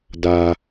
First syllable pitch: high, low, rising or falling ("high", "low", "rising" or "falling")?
low